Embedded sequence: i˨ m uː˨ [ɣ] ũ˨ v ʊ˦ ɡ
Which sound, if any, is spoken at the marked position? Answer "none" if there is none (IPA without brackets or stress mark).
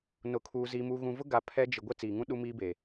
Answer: ɣ